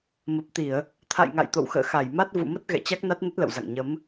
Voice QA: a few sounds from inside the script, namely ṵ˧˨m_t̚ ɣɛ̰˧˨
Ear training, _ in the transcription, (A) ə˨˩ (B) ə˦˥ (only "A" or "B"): B